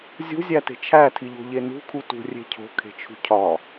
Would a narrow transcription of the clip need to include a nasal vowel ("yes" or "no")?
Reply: no